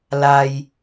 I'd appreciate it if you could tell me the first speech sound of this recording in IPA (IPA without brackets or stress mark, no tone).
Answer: l